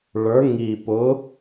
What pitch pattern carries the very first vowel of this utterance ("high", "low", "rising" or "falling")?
rising